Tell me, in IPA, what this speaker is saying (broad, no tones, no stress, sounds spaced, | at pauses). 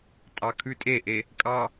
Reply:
tʼ ɑ kʰ ʉ tʼ e ʔ e | kʼ ɑ